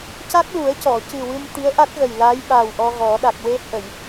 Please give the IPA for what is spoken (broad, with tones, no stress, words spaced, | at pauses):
ca˦˥k̚lu˨˩˦ə̯cɔ˨˩˨cɨ˨˩ wɨ˧mt̪i˧˥ə̯ʔa˦˥t̚ɣə˨˩j la˧˥jɓa˨˩w ʔɔ˧ɣɔ˨˩˦ ɗa˨˩k̚we˧hə˨˩˨j